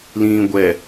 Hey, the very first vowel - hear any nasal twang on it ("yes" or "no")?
yes